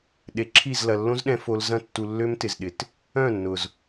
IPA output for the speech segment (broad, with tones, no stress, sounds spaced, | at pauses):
ɗ e˨ ǁʰ i˦˨ z l ɐ˨ lː õ˦ z ɗ ɛ̃˧ f o˧ l z ɐ̃˧ tː u˨ lː ø˦ m t ɪ˨ z ɗ ɪ˨ t | œ̃˦˨ nː ʊ˨ z